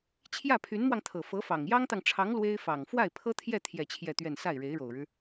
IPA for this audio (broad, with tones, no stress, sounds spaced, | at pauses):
t͡ɕʰ j ä˥˩ pʰ y˧˥ n m w ɑ˧ ŋ t̪ʰ ɤ˨˩ f ɤ˧˥ f ɑ˨˩ ŋ j ɑ˥ ŋ t̪ ɑ˨ ŋ ʈ͡ʂʰ ɑ˧˥ ŋ l w e˥ ɪ̯ f ɑ˨˩ ŋ f w a˥˩ ɪ̯ pʰ ɤ˥ t̪ʰ j ɛ˥˧ t̪ʰ j ɛ˥˧ t͡ɕʰ j ɛ˥˧ t̪ ɥ ɛ˥˧ n s a˥˩ ɪ̯ ɻ e˧˥ ɪ̯ ɻ o˨˩ ʊ̯ ɻ ɻ̩˦